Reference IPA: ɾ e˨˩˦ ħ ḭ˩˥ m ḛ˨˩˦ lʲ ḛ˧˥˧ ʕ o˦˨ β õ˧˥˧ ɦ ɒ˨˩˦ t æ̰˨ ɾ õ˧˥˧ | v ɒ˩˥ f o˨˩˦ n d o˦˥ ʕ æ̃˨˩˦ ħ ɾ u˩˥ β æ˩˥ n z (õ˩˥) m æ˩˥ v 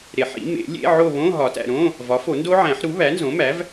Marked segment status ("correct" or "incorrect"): correct